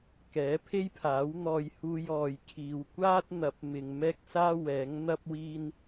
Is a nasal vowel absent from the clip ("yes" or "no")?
yes